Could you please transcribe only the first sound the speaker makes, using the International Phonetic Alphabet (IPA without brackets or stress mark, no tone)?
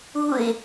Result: u